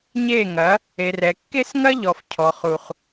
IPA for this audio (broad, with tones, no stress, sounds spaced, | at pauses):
ɲ e˦˨ ŋ ɐ˨˦ | e˨ r ɛ˨ kː e˦ s ŋ ɐ˦ ʎ ɔ˨ f cʰ ɔ˨ χ u˨ χ